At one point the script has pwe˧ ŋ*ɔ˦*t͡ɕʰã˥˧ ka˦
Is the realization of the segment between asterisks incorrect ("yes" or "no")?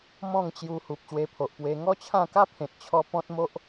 no